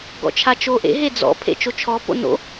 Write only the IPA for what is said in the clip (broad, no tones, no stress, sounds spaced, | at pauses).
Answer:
ɡ ɔ̰ t͡ʃʰ a t͡ʃ o ʔ ḛ ɦ e d͡z ɔ̰ pʰ ḛ t͡ʃ o t͡ʃʰ ɔ p o̰ n o̰